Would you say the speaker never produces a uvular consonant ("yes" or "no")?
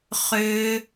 no